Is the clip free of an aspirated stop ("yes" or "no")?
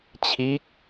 no